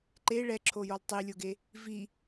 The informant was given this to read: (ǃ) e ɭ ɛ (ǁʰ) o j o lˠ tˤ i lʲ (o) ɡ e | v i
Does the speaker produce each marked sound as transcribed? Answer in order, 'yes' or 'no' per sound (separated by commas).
yes, yes, yes